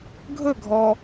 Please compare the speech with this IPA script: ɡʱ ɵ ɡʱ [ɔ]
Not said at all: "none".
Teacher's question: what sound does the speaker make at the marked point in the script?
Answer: ɔ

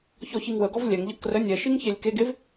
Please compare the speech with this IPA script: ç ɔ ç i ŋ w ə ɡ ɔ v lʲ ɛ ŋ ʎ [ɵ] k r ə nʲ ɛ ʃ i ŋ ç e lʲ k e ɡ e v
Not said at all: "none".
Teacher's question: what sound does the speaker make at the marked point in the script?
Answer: ə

